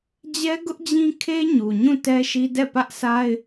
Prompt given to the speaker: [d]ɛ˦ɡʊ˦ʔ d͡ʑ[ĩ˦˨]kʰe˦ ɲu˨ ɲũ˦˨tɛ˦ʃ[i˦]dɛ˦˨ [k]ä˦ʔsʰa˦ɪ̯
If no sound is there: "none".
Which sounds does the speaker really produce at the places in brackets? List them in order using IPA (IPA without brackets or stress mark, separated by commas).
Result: d͡ʑ, ĩ˦, i˦, p